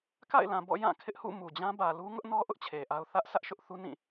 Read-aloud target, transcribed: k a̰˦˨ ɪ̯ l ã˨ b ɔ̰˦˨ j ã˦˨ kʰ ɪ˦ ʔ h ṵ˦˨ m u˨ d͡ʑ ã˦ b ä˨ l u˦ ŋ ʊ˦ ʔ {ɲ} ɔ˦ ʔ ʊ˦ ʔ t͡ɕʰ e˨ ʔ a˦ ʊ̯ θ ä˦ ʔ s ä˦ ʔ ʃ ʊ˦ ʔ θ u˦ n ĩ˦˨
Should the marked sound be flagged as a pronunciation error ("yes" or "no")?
yes